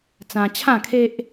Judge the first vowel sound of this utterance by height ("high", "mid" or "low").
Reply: low